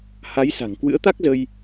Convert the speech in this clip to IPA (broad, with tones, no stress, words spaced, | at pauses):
ha˨˦jsa̤˨˩ŋ kwɨ̰˧˥ə̯t̪a˦˥k̚zə˧j